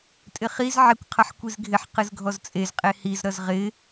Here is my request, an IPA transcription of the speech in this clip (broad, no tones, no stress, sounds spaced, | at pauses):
tʼ ɪ χ i z ʕ ɪ kʷ qʰ ʌ ħ kʷ i z ɡʱ ɪ ħ q ɨ z ɡʱ ɔ z t͡sʼ e z qʼ e h i z ɾ ʌ z ʁ ɪ